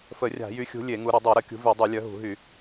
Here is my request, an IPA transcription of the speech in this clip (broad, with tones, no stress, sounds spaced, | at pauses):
f ə˧˩˧ rʲ a̤˧˩˧ j y˨˦ xʲ ṳ˨˦ lʲ e˧˩˧ ŋ u˨˦ ɾ ə˧˩˧ dˤ e˧˩˧ ɾ ə˧˩˧ kʲ ṳ˨˦ v y˧˩˧ dˤ u˧˩˧ lʲ œ˨˦ ɦ ṳ˧˩˧ ɦ y˧˩˧